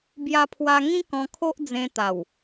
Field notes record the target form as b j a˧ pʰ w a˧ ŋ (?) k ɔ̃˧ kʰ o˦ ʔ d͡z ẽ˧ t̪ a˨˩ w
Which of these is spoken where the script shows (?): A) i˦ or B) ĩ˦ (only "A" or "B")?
B